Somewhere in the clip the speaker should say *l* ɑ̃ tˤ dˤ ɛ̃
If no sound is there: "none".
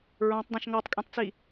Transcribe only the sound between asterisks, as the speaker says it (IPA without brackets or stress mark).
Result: ɹ